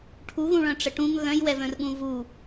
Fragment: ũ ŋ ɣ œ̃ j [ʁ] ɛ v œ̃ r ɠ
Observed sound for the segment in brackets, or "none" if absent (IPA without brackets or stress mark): w